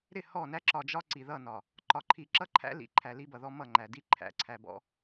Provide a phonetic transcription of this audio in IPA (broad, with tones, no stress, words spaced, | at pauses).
ɾɪ˦˨hɔ˦˨næ˦ ǁɒ˨d͡ʒɒ˦ ǀi˨ðʌ˦˨nɒ˨ | ǃɒ˨ǃʰi˨ǁʌ˦ ǃʰæ̰˦ lḭ˨˦ǃʰæ˨li˦bʌ˨ ðɔ˦mʌ˦˨ŋ͡ǃæ˨di˦ ǃʰæ̰˨ ǀʰæ˨bɔ̰˦